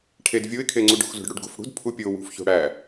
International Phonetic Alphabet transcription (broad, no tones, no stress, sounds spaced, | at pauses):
ʈʰ e d vʲ o ɪ̯ kʰ e ŋ͡ǀ u ɖ o̤ x z o̤ ɖ ɽ u ɖ ɡ o̤ f ɽ ṳ d pʰ u pʲ o w ṳ f ç o̤ ɽ æ